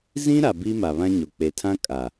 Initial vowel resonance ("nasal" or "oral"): nasal